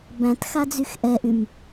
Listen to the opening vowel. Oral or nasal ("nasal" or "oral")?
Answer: nasal